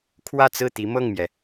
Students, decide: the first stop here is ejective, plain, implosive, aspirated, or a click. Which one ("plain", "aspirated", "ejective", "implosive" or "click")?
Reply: aspirated